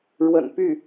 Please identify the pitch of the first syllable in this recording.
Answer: low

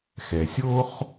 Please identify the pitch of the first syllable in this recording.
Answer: low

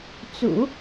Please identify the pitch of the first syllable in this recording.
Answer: low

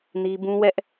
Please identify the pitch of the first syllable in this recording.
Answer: high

